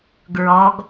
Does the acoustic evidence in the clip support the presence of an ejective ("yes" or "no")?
no